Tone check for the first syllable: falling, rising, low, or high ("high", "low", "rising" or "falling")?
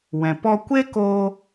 low